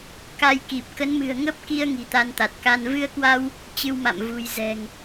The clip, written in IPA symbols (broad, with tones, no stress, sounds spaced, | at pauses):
k a˧ j k i˨˩ p̚ k ə˨˦ n m ɨ̤˨˩ ə̯ ŋ ə˦˥ p̚ k i˧ ə̯ ŋ i̤˨˩ t̪ a˧ n t̪ a˨˩ t̚ k a˧ n v ɨ˧ ə̯ k w a˧ w | t͡ɕ ɨ˧ w m a̰˧˨ m v ṳ˨˩ j z ɛ̤˨˩ ŋ